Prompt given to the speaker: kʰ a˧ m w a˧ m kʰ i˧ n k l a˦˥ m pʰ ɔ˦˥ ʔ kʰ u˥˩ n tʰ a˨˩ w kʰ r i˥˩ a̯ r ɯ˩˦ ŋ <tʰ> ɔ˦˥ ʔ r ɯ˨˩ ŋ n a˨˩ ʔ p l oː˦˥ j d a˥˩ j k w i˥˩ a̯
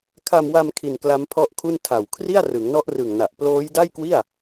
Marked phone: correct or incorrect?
incorrect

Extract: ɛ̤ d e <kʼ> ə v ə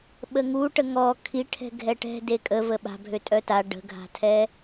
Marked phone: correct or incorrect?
correct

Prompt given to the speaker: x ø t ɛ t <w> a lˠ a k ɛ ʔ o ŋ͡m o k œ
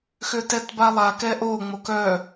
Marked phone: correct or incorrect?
incorrect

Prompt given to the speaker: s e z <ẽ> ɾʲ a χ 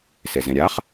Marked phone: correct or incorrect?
correct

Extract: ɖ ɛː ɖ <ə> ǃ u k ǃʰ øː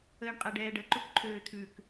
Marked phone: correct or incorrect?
correct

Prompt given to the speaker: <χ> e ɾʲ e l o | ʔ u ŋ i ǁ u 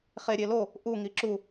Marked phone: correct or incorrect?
correct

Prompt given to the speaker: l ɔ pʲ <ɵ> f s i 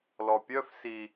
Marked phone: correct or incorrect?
incorrect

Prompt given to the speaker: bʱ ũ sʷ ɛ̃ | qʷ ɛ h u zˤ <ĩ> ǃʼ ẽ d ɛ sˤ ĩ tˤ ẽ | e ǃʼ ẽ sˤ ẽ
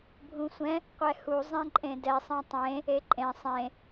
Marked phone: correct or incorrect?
incorrect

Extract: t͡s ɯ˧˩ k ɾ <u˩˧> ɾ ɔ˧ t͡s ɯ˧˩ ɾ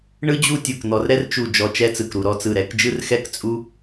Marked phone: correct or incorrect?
correct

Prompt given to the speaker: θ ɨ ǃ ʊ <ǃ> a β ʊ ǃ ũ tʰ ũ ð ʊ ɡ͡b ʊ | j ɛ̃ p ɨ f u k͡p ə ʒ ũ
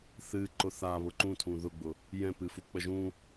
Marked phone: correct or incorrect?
incorrect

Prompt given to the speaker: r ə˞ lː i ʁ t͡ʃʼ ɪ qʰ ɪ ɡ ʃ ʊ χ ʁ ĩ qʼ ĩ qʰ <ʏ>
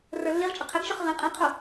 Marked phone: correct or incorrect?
incorrect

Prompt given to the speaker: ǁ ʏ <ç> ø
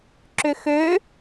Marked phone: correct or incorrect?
incorrect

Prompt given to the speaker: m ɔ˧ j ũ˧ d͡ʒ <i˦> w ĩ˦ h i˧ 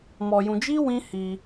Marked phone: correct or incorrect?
correct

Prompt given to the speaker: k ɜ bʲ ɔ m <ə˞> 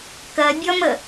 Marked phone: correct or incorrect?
incorrect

